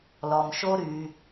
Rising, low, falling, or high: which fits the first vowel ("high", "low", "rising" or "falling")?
low